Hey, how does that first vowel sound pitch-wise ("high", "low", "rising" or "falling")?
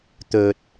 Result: low